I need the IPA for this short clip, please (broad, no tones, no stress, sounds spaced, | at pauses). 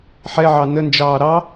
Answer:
ħ ɛ ʕ ɑ n ə n d͡ʒ ɑː ɾ ɑ